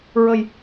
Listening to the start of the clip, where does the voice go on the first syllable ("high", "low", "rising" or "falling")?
low